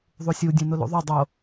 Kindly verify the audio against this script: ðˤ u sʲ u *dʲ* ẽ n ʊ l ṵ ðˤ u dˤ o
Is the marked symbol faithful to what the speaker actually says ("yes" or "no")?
yes